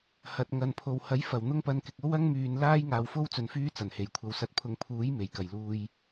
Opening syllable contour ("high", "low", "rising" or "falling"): low